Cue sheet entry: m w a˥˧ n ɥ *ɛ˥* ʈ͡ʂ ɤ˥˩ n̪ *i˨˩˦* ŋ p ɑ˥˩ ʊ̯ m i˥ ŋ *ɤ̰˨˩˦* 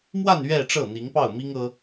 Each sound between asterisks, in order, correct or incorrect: incorrect: ɛ˥˧, incorrect: i˧˥, incorrect: ɤ˥

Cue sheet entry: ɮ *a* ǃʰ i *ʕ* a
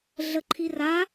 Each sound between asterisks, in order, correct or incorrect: incorrect: ə, incorrect: r

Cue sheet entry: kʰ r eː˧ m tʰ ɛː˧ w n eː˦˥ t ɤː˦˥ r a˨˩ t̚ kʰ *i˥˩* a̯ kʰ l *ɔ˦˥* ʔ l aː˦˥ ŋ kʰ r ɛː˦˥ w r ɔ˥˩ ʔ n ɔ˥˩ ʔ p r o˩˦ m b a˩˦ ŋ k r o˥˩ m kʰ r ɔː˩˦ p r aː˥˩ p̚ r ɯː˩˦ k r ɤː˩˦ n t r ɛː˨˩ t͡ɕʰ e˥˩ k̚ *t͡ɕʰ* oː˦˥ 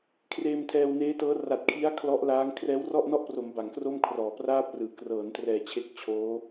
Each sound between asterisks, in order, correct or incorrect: incorrect: i˦˥, correct, correct

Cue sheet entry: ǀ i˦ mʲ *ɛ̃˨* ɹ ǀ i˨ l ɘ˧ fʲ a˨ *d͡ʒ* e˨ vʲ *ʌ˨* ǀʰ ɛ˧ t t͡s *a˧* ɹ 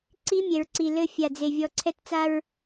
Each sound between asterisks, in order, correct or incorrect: incorrect: ɛ˨, incorrect: d͡z, incorrect: ɔ˨, correct

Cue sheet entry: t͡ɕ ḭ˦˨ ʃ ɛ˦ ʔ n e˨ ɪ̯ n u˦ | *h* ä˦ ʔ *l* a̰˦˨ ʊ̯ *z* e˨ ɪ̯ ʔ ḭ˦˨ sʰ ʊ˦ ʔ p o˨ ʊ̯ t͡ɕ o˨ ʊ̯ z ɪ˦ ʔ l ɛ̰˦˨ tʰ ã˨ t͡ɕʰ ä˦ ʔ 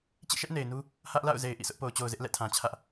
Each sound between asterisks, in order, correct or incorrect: correct, correct, correct

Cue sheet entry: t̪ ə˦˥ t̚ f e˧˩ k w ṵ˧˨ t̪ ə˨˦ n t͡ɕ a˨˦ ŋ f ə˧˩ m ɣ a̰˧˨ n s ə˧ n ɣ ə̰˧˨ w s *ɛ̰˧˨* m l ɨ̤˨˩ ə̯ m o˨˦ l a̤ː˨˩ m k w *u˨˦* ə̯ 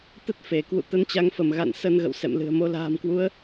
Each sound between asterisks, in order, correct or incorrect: correct, correct

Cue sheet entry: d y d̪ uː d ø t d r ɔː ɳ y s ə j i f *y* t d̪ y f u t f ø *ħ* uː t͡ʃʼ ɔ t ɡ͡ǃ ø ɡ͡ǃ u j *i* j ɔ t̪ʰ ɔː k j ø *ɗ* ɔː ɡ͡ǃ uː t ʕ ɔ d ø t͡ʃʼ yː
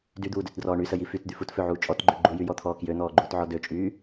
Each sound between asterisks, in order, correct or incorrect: correct, incorrect: ʕ, incorrect: y, incorrect: n̪

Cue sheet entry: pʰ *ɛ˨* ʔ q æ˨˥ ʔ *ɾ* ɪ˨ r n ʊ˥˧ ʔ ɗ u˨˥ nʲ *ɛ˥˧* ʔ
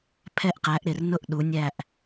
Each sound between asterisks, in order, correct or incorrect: incorrect: ɛ˥˧, correct, incorrect: æ˥˧

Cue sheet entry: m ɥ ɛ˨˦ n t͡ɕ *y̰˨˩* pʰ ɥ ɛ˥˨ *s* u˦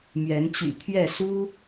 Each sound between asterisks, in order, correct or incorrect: correct, correct

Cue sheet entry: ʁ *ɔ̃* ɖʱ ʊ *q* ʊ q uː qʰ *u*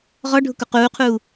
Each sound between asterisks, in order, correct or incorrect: incorrect: ɔ, incorrect: k, incorrect: uː

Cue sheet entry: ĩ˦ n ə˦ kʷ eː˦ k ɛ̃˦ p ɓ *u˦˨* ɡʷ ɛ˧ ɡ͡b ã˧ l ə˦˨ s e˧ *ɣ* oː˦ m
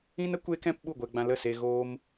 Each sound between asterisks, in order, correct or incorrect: correct, correct

